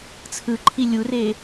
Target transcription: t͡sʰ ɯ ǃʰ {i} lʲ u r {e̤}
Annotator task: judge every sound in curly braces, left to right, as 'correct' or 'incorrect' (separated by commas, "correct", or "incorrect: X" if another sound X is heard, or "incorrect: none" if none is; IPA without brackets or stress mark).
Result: correct, incorrect: e